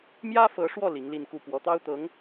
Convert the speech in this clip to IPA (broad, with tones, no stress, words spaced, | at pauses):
mjä˥fɤ˧˥ʂwɔ˥˩ li˧˥ŋli˥˧nku˥˩ pwɔ˧˥t̪ɑ˥ʊ̯t̪ɤ˧˥ŋ